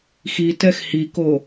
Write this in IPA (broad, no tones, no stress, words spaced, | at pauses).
xitɛx hiko